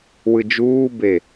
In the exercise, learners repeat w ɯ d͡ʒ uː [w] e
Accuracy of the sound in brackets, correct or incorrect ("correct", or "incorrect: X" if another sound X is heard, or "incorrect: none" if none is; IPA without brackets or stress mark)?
incorrect: b